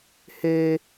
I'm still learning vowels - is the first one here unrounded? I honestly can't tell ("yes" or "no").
yes